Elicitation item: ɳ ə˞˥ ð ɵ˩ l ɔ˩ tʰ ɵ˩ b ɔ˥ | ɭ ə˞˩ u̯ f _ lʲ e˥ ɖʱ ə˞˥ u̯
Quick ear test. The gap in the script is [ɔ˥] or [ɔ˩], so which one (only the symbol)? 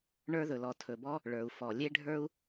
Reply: ɔ˩